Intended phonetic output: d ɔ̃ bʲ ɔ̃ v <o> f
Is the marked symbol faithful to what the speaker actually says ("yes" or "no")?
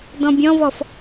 no